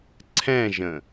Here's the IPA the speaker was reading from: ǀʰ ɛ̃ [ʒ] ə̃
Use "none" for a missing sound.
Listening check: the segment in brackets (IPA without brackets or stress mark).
ʒ